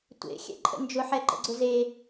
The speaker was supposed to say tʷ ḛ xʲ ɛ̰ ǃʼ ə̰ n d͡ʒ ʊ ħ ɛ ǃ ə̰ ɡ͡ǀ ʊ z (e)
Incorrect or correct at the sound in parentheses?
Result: correct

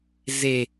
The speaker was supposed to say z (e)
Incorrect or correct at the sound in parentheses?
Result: correct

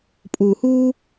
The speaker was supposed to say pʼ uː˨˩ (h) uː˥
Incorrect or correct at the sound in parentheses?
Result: correct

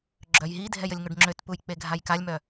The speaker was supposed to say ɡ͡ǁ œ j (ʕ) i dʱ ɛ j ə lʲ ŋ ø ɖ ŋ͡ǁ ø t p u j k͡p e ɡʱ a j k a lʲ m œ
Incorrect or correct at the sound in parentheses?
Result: incorrect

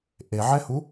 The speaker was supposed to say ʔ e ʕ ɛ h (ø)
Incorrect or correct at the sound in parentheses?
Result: incorrect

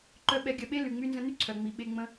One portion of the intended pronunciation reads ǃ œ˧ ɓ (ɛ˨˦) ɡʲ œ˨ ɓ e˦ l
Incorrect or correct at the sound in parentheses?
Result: correct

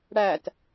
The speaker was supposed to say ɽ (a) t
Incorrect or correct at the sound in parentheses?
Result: incorrect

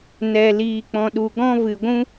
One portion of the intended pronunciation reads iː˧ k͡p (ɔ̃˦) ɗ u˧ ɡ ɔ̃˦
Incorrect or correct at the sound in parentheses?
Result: incorrect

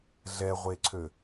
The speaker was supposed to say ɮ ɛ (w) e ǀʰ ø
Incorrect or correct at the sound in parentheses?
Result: incorrect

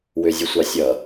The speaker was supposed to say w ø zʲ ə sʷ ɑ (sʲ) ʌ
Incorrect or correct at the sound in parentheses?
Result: correct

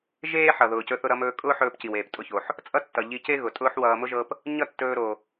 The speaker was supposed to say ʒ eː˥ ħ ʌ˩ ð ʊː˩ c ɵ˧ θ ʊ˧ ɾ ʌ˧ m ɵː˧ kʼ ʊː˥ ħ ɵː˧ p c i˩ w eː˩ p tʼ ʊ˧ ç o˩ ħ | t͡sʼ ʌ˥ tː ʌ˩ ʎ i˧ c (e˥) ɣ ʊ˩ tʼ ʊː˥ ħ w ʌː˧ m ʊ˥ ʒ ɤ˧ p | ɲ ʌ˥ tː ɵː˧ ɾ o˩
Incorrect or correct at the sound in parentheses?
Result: correct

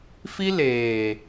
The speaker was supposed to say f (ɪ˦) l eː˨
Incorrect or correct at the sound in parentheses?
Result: incorrect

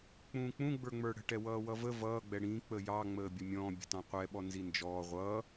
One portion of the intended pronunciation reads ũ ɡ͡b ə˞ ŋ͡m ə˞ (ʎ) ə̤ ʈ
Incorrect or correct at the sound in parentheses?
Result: incorrect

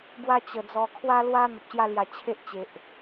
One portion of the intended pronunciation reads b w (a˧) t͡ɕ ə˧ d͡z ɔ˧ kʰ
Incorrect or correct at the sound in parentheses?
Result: incorrect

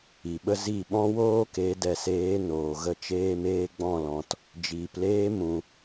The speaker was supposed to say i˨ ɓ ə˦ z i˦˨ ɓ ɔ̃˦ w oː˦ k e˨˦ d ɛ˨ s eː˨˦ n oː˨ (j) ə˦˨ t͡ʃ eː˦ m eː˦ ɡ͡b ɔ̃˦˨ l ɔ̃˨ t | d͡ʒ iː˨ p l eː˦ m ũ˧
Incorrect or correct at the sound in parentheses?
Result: incorrect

